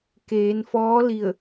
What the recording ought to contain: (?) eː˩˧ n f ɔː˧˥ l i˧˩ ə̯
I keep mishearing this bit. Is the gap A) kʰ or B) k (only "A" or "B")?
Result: B